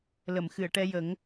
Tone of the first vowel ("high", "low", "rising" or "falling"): low